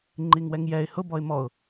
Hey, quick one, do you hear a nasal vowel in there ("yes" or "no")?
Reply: no